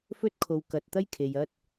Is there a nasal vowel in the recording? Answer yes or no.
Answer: no